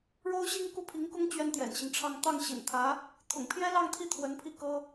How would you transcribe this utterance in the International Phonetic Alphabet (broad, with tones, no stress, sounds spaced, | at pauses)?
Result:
ɻ o˥ ʊ̯ ɕ i˥ ŋ k u˥˩ pʰ i˧˥ ŋ k ʊ˥ ŋ t͡ɕ ɥ ɛ˥ n t̪ j ɛ̰˨˩ n ɕ i˦ ŋ ʈ͡ʂʰ ɑ˥ ŋ t̪ ɑ˥˩ ŋ ɕ ḭ˨˩ n t̪ʰ ä˧˥ | t̪ʰ ʊ̰˨˩ ŋ pʰ j ɛ˥ l ɑ˥˧ ŋ t̪ʰ i˥˩ t̪ʰ w ə˧˥ n pʰ i˥˩ k ɤ˥